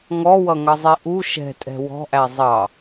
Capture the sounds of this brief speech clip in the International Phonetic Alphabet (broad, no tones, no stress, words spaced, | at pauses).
ŋɔwʌŋʌzˤi ʔu ʃɛ̤tʼɛ̤ wɔ̤ʔæ zˤɑ